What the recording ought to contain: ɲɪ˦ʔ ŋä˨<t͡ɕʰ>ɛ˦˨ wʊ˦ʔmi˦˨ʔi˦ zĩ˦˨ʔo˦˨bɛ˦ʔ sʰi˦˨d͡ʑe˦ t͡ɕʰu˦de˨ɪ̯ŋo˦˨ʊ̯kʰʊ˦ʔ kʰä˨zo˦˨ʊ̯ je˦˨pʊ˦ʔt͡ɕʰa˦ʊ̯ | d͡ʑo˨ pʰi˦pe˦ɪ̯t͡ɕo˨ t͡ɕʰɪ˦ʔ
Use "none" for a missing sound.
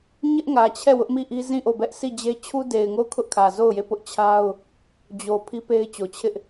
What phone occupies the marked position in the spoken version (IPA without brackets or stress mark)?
t͡ɕʰ